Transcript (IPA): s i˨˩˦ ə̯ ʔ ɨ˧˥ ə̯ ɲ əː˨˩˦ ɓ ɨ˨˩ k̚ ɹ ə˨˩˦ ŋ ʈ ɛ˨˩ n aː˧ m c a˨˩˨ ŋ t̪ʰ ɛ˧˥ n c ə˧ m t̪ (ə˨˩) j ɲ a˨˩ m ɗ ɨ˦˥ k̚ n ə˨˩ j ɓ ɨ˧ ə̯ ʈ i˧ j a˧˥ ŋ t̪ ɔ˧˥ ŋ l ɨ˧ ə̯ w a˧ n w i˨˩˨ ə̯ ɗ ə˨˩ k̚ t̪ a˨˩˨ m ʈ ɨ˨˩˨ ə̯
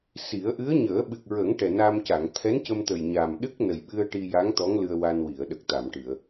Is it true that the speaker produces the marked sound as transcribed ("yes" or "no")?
yes